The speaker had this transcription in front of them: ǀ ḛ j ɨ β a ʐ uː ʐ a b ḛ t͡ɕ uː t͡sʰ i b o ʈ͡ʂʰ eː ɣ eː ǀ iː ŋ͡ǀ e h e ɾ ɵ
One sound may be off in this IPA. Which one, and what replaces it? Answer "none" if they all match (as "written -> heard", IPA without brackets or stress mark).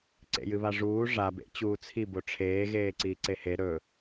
ŋ͡ǀ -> ǀ